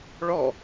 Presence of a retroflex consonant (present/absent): present